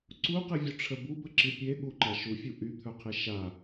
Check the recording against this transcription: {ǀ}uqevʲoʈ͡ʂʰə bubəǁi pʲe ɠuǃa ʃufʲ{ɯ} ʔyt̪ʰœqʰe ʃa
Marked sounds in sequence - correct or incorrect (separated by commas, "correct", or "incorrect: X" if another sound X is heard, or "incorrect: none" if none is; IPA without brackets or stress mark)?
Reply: correct, incorrect: u